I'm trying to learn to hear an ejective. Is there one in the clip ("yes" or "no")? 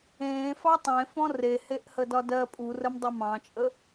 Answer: yes